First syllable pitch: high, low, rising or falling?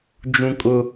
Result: high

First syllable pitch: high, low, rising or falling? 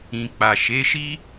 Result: low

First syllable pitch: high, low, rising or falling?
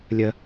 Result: low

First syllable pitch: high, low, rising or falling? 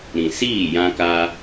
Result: low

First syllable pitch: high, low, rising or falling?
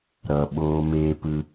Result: low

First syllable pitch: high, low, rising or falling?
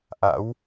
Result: rising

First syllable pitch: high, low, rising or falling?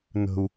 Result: high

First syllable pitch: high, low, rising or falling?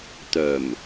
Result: low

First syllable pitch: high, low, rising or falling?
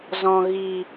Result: low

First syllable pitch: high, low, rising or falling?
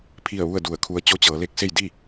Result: falling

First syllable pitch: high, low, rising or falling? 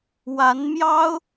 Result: rising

